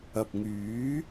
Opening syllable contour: low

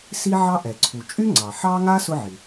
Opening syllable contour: high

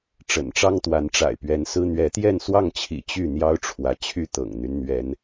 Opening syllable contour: low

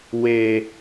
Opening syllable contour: low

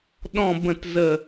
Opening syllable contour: low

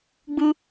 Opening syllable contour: high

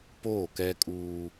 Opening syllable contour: falling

